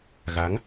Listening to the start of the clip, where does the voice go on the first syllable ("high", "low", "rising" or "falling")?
rising